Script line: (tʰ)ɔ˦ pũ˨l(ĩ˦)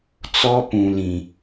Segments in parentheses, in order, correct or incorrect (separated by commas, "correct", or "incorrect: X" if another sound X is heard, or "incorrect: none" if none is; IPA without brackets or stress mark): incorrect: t͡s, incorrect: ĩ˨